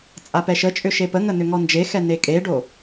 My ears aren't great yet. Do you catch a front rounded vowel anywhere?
yes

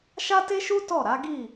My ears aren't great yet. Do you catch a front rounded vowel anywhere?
no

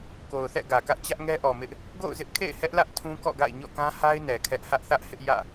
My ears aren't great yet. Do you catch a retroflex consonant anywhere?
no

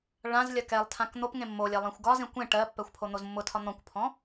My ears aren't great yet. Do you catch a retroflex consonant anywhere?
yes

